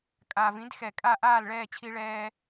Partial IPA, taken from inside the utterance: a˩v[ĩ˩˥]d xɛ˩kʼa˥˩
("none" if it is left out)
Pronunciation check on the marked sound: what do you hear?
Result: ĩ˩˥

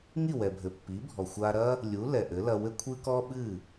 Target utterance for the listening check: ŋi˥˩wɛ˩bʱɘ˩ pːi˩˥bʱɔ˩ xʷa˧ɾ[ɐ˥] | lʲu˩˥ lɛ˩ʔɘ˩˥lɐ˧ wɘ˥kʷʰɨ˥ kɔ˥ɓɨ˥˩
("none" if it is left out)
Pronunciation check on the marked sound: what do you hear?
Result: ɐ˥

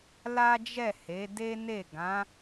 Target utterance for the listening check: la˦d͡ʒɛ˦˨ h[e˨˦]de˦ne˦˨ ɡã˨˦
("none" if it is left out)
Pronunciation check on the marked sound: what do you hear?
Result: e˨˦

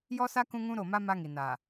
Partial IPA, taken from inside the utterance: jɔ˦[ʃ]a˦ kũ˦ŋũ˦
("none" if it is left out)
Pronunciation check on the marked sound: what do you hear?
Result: s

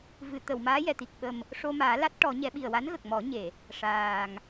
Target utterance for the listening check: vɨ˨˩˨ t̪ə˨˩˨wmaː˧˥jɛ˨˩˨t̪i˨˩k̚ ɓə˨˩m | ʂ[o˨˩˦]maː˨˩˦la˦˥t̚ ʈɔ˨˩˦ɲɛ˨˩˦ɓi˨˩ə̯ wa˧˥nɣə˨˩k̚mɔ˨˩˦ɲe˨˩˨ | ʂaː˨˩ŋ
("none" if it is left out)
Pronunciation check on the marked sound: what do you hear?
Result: o˧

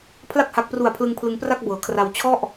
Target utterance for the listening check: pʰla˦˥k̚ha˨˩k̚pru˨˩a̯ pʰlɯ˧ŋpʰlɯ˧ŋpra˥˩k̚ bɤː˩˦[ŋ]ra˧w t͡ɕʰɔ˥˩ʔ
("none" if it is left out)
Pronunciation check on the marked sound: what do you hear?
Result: kʰ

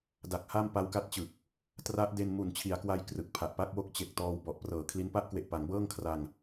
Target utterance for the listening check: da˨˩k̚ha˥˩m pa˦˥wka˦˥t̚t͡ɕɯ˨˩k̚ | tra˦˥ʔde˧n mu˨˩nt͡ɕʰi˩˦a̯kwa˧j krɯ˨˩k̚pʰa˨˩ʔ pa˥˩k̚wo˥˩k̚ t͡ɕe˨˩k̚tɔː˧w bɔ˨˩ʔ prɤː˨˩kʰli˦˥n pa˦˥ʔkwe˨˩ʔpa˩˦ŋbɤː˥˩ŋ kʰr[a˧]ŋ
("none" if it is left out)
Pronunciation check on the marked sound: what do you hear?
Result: a˧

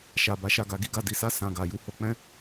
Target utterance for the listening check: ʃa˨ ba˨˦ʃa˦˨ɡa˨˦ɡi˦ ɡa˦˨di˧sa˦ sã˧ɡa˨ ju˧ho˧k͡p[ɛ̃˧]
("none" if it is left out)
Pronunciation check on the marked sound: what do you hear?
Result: ɛ̃˦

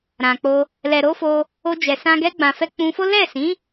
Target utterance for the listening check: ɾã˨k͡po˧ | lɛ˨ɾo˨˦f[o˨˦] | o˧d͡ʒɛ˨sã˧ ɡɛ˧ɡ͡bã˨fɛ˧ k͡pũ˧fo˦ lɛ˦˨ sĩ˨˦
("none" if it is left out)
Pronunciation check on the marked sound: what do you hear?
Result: o˧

